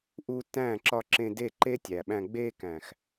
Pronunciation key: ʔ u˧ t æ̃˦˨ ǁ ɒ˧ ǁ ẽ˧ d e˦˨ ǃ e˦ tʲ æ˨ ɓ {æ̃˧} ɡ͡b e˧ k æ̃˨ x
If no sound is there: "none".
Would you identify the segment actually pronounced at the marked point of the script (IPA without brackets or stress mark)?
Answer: æ̃˧